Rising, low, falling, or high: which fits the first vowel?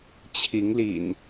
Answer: rising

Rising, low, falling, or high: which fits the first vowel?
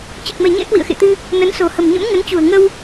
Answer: low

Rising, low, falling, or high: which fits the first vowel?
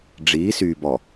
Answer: rising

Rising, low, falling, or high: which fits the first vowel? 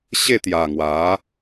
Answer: falling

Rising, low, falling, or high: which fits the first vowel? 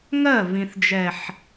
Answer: falling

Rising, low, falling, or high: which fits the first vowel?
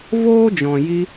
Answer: high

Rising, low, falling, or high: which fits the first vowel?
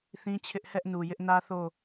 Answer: high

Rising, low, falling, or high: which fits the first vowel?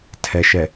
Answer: low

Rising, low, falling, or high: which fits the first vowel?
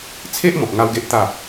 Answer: high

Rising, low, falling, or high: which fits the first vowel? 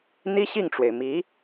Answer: high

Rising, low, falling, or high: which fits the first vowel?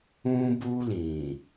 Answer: high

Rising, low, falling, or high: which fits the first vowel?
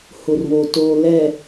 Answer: low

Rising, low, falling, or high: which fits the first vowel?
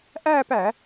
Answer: falling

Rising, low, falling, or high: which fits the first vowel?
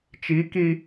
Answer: rising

